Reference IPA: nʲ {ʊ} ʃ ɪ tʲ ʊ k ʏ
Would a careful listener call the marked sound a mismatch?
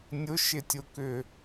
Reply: no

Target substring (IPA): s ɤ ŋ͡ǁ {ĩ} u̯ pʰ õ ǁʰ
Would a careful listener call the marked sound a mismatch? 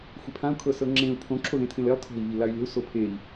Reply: yes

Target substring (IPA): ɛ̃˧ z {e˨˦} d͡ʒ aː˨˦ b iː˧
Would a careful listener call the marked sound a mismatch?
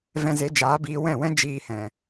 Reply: no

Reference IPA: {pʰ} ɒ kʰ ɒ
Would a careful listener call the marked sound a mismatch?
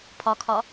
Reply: no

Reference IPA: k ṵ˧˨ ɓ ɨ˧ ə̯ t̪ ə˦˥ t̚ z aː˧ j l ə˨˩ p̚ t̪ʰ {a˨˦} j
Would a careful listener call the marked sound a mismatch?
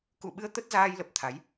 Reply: no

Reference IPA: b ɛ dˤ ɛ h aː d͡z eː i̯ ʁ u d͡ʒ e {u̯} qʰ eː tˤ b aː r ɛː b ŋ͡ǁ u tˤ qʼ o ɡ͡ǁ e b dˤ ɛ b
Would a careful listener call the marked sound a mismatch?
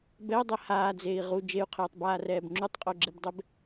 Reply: no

